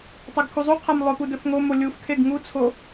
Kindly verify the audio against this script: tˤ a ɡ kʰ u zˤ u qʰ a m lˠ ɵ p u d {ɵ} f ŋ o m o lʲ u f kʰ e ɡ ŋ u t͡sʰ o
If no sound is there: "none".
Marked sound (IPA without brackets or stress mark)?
ɵ